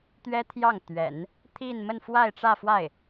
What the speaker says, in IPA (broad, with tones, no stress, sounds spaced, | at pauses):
t̪ ɥ ɛ˥ t̪ʰ j ɑ˥˩ ŋ t̪ ɥ ɛ̰˨˩˦ n | t̪ʰ i˥˧ n m ə˥˧ n f w a˥˧ ɪ̯ ʈ͡ʂ ä˥˧ f w a˥˩ ɪ̯